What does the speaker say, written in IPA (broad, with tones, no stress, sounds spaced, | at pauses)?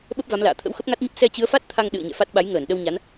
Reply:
ɓ ə˦˥ p̚ v a˨˦ m l a̰ː˧˨ t̪ʰ ə̰˧˥ w x ə˦˥ p̚ ŋ a˦˥ t̚ ɲ ə˦˥ p̚ s ɛ˧ t͡ɕ ɨ˨˦ ə̯ f a˦˥ t̚ t̪ʰ a˧ ŋ ɗ ɨ̰˧˨ ə̯ ɲ ɛ̰˧˨ f a˦˥ t̚ ɓ a˨˦ j ŋ əː˧˩ n ɗ ə˧ w ɲ a˨˦ n